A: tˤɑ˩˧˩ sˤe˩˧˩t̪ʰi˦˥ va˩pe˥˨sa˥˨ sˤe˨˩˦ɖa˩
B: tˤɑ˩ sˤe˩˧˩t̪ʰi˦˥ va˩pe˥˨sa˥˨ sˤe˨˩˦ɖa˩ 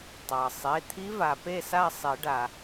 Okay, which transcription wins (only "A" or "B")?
B